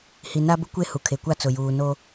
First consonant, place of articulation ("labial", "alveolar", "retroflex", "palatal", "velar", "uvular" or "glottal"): glottal